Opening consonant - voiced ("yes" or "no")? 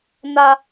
yes